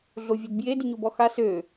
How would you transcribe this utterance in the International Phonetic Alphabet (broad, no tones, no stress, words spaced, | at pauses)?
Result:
ɮovʲodbje diɲobɔxa sø